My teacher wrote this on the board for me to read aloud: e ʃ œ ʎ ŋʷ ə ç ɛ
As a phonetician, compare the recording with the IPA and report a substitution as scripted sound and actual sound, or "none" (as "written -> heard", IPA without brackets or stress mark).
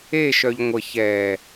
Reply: none